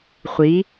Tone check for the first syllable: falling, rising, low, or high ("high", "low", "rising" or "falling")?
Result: rising